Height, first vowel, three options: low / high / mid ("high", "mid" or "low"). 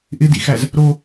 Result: high